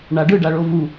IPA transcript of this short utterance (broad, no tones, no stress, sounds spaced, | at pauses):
ɳ a ɖ ɯ ɖ a ɭ o v u